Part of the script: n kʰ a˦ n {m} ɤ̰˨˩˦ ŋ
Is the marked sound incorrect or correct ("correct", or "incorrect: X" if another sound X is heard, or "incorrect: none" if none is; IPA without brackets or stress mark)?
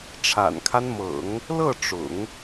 correct